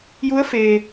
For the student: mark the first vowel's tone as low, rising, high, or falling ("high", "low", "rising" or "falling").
rising